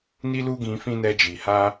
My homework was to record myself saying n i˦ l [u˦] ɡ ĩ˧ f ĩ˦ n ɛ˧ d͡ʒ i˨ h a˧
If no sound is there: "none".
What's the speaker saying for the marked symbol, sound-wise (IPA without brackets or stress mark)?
u˦